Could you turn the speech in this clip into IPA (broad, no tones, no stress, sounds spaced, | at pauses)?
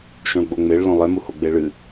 ʃ õ ɭ ɡ͡b o ŋ͡m e ɭ l õ lˠ e m u h o ɡ͡b e ɭ ɨ